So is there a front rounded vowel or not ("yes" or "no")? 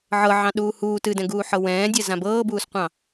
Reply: no